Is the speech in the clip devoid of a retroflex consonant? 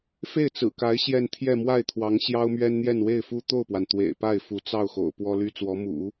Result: yes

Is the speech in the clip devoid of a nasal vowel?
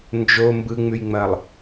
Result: yes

